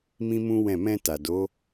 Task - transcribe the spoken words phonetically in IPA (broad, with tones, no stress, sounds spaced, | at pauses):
m ĩ˦ m ũ˦ w ɛ̃˦˨ m ɛ̃˧ t a˨ d o˨˦